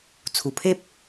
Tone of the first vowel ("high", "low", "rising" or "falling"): low